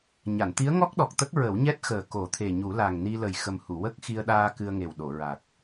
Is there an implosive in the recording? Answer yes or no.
yes